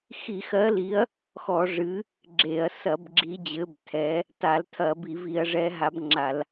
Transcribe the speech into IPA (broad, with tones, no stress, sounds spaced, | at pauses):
x i˧˩˧ x ɜ˨˦ l i˨˦ ɐ̯ | x ɔ˧˩˧ ʐ ɨ˨˦ | ɡ͡ǁ e˧˩˧ ɐ̯ s ɐ˧˩˧ b ɡ͡ǁ i˨˦ d͡ʑ ɘ˨˦ b tʰ ɛ˨˦ | t a˧˩˧ l tʰ ɐ˧˩˧ b i˧˩˧ v i˧˩˧ ɐ̯ ʐ ɛ˨˦ ɦ a˨˦ b ŋ͡ǁ a˧˩˧ l